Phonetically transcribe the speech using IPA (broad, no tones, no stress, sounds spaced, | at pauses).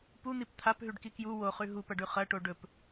p u n̪ i p t̪ʰ a p ɦ ʉ ɖ k i k j u w o χ ʉ ɦ u p ɐ ɖ ʉ χ ɐ ʈ o ɖ ɵ p